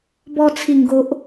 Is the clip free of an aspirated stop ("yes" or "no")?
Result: no